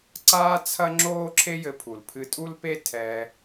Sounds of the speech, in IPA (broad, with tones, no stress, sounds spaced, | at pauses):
ǀ aː˥ t͡sʰ ɐ˥ ŋ͡ǁ oː˥ ǁʰ e˥ j ɘ˧ pʰ u˩ l pʰ ɨ˧ tʼ u˥ l p e˥ tʰ ɛ˧